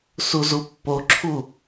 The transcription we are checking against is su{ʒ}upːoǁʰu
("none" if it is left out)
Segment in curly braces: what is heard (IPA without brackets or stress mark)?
z